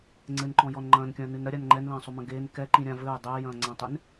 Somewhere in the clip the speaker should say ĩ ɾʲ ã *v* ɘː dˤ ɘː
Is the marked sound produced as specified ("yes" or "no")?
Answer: yes